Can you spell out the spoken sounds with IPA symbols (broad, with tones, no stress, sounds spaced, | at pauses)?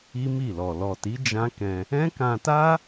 i˦ m i˦˨ l ɔ˨ l ɔ˨ t i˨˦ d͡ʒ ã˦ k ɛ̃˧ | ɛ̃˦ k ã˧ t a˦